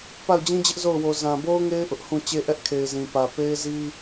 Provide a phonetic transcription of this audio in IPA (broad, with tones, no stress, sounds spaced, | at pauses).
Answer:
p a˦˨ ʊ̯ d͡ʑ ĩ˦ d͡ʑ ɪ˦ ʔ z o˦˨ ʊ̯ w o˨ z ã˨ b o˦ ʊ̯ ŋ e˦ ɪ̯ ʔ ʊ˦ ʔ h ũ˦˨ t͡ɕ e˦ ʔ ɛ˦ ʔ kʰ e˨ ɪ̯ z ĩ˨ p ä˨ p e˦ ɪ̯ z i˦